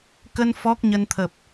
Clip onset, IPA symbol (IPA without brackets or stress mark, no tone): k